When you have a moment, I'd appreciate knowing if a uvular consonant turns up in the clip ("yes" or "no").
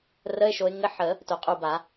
yes